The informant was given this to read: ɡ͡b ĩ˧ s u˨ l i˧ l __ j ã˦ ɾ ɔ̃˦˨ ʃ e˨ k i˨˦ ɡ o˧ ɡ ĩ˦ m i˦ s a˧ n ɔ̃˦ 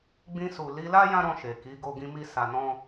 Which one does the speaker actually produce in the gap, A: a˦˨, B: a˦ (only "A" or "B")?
B